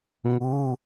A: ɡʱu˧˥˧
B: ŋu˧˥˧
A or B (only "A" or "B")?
B